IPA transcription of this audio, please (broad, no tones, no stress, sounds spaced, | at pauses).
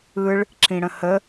ɯ ɭ | ǁʰ ĩ ɽ ə̃ h ə